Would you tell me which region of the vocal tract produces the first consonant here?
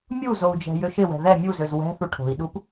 lips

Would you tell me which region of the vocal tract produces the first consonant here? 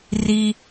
tongue tip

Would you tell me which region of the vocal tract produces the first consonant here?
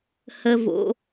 throat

